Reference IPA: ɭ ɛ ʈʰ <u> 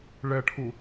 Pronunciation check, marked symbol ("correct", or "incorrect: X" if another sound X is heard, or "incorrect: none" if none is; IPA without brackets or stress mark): correct